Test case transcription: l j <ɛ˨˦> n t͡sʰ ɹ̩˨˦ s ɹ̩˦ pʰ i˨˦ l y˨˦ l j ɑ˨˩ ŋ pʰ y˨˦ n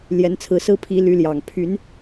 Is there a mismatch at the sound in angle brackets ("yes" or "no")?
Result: no